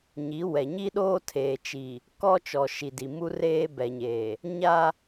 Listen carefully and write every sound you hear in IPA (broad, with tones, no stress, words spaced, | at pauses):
ɲi˨˦wɛ˨ ɲi˦ɗoː˦tʰeː˨ t͡ʃi˨ | kɔ˦t͡ʃɔ˨ ʃi˨di˨ mu˦reː˦bɛ˨ɲeː˨ | ɲa˦